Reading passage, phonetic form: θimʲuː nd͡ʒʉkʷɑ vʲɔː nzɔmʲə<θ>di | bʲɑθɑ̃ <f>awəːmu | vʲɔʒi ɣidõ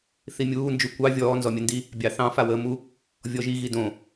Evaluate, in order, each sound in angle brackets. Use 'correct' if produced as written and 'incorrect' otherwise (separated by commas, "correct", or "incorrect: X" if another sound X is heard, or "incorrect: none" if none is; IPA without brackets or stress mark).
incorrect: n, correct